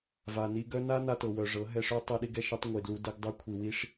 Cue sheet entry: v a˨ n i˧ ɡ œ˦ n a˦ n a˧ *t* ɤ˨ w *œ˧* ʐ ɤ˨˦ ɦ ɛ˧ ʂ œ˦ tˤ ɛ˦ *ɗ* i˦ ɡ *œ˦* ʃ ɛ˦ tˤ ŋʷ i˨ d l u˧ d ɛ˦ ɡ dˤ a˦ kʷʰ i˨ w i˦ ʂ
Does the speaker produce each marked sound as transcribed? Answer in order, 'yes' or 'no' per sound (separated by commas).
yes, no, yes, no